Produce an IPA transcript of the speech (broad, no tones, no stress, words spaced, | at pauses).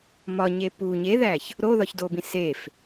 mɒɲe pu ɲeðæç | ɾoðɒçdobĩ sef